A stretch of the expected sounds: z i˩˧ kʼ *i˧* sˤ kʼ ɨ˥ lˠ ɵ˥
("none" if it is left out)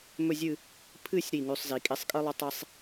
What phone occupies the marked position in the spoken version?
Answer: i˧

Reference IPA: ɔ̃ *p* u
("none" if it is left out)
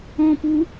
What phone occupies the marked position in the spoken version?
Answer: p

